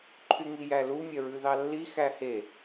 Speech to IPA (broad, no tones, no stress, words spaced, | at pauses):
ǃʰyŋijælu mʲœɹʉðɑlːi xæhe